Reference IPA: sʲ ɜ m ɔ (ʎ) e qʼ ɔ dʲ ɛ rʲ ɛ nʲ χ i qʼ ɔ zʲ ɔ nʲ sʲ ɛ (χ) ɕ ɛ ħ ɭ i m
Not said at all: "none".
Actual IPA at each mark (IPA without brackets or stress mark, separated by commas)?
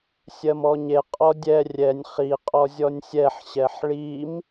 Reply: ɲ, ħ